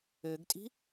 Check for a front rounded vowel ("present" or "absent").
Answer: present